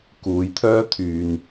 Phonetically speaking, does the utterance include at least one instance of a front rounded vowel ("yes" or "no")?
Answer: yes